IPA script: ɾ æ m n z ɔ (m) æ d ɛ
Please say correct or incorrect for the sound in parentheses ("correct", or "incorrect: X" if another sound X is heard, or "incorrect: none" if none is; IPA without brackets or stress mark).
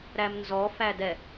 incorrect: f